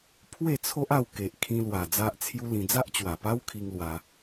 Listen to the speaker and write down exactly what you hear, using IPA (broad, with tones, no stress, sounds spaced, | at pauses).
pʰ w e˥˧ t͡sʰ o˦ ʔ a˥˧ w k e˨ ʔ kʰ ĩ˧ l w a˨˩ d͡z a˦ ʔ t͡sʰ j u˦ l ĩ˧ d͡z a˦ ʔ t͡ɕ w a˨˩ p a˦ w kʰ i˧ ŋ l w a˧